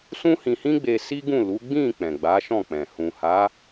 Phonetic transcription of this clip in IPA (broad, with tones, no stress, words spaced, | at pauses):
sũ˦hĩ˧hĩ˦ɡ͡be˧ si˦ɡũ˦˨lu˨˦ ɡ͡bĩ˦˨ k͡pɛ̃˨ɡ͡ba˨˦ʃɔ̃˦˨k͡pɛ̃˨ hũ˨ha˨˦